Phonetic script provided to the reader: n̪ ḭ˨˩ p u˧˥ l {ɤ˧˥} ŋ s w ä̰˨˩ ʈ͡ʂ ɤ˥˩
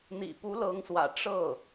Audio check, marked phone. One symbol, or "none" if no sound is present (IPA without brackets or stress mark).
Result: ɤ˧˥